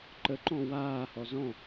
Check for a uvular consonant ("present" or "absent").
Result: absent